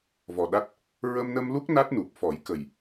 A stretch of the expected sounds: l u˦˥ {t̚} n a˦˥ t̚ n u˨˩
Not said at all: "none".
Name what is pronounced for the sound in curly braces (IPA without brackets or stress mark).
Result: k̚